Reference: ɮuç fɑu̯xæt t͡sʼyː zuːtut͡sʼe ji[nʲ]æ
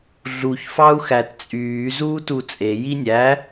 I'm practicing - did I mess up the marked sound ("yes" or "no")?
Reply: no